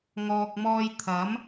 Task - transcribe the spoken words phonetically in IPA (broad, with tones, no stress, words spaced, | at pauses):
ŋɔː˨k̚mɔː˧j t̪ʰɐ˨˥m